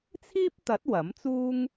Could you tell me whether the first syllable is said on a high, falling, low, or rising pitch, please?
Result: high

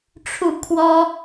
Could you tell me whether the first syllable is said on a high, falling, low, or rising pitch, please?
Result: falling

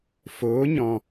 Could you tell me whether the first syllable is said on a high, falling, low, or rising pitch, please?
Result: rising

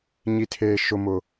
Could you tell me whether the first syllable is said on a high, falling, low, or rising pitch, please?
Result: low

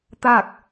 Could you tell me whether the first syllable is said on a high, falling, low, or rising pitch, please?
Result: falling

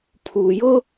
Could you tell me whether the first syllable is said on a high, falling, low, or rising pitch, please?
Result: low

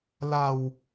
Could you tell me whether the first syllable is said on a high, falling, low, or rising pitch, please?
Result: low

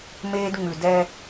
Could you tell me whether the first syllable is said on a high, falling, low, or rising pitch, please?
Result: high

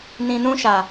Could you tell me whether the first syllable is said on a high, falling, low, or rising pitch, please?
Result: low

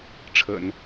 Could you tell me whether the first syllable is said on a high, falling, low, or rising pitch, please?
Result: low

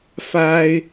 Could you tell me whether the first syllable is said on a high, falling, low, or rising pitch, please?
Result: high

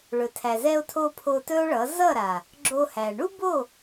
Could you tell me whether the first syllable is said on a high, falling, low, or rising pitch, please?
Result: low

